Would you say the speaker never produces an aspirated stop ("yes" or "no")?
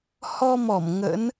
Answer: yes